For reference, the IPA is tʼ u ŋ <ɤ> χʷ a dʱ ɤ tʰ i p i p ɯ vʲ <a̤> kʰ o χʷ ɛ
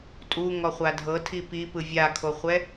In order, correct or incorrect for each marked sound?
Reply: incorrect, incorrect

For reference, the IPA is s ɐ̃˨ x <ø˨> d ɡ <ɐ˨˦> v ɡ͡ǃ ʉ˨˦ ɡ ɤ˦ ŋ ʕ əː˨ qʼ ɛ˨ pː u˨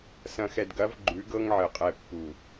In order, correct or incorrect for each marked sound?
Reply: incorrect, correct

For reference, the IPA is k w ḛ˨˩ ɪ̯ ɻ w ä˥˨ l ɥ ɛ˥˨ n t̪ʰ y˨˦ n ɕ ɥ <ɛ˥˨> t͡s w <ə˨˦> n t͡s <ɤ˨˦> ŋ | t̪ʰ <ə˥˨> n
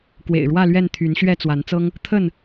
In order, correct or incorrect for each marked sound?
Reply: correct, incorrect, incorrect, correct

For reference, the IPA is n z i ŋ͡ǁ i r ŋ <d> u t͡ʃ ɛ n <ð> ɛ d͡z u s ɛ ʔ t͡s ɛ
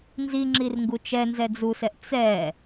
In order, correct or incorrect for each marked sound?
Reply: incorrect, incorrect

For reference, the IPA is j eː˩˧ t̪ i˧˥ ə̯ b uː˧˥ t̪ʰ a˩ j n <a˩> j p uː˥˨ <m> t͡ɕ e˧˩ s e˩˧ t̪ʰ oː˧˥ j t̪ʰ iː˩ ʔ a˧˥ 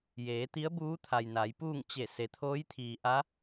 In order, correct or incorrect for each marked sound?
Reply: incorrect, incorrect

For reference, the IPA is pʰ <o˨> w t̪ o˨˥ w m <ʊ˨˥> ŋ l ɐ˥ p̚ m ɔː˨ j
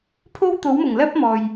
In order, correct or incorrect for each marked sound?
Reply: incorrect, incorrect

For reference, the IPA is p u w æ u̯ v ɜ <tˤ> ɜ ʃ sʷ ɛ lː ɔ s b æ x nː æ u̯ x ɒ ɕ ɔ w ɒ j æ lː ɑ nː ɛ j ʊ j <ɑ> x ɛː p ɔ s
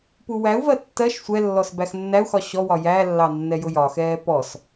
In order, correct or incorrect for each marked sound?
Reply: incorrect, incorrect

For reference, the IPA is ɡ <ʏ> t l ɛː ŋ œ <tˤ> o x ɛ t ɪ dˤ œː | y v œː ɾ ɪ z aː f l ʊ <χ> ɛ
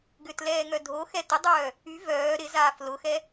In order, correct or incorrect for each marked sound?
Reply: correct, incorrect, incorrect

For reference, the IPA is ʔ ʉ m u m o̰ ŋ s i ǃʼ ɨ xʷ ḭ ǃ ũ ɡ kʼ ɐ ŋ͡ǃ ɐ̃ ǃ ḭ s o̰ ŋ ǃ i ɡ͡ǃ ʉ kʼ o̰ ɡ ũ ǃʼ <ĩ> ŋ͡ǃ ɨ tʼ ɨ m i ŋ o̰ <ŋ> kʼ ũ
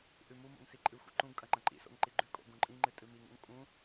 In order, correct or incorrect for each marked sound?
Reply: correct, correct

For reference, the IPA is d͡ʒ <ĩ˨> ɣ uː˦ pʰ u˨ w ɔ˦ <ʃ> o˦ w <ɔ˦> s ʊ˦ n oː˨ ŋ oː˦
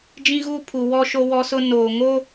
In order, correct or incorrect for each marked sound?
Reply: incorrect, correct, correct

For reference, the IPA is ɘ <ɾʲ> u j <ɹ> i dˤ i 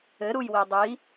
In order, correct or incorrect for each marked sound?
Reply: incorrect, incorrect

